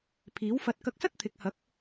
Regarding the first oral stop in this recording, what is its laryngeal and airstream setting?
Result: aspirated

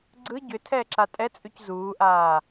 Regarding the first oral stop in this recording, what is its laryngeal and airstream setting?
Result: click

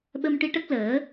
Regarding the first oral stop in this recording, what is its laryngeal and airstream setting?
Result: implosive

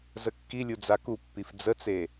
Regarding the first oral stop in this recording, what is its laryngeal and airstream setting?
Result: plain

